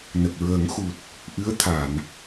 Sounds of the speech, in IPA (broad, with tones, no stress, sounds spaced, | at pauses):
n ə˨˩ k̚ ɹ əː˨˩˦ ŋ x u˨˩ t̚ | ʔ ɨ˧˥ ə̯ t̪ʰ a˨˩˨ n